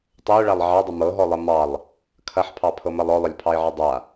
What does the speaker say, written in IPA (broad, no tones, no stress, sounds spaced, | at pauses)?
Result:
tˤ ɤ ʊ̯ ɭ a lˠ ʕ ɑ dˤ ə m ɤ ɦ ɔ lˠ ɐ m ɑ lˠ | kʰ ɐ ħ pʰ ɑ pʰ ɤ m ɐ lˠ ɔ lˠ ə lʲ pʰ ɑ ɪ̯ ʕ ɐ dˤ a